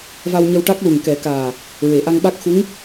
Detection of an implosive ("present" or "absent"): present